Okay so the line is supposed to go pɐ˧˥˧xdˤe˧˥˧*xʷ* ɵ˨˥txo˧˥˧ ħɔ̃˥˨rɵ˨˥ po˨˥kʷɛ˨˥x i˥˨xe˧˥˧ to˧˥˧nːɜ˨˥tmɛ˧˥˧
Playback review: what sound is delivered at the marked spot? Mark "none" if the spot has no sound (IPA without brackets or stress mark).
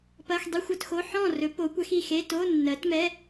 xʷ